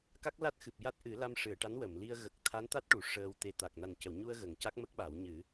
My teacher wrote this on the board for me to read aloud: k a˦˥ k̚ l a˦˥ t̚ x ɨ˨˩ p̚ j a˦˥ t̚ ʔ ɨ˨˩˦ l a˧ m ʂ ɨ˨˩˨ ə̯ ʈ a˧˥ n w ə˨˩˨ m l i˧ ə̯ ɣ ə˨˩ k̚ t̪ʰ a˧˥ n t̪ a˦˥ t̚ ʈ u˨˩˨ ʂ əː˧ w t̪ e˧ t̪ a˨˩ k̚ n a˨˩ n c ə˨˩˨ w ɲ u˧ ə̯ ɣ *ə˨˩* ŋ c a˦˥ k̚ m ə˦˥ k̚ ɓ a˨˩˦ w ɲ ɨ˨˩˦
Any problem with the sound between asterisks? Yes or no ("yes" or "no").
no